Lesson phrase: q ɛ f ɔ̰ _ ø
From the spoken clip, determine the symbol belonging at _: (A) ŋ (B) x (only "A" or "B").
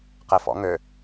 A